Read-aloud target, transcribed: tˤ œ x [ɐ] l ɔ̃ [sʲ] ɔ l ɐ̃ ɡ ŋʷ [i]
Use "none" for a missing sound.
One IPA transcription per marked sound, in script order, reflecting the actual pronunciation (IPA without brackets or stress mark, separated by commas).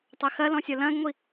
ɐ, sʲ, i